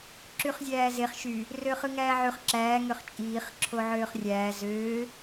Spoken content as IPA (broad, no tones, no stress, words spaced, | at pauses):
ǁyχzʲæːzeχ ʃy | røχɯŋæːʕyχ ǁæː ŋøχt͡ʃʼiːχ ǁʰoʕøːχrʲæː zøː